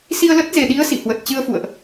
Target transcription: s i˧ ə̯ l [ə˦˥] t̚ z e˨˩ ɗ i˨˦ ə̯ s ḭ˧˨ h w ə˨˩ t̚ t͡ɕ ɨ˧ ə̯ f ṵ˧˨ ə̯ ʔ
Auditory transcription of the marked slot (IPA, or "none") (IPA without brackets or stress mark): ə˦˥